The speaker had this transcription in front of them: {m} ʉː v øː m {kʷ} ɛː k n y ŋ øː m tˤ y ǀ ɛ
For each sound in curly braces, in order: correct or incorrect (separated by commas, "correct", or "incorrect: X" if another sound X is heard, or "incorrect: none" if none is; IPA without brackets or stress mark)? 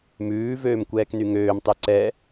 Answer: correct, correct